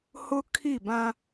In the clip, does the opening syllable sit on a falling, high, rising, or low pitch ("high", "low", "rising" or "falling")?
high